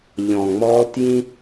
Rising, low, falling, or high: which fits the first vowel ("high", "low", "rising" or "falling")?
low